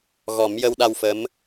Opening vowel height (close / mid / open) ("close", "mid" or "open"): mid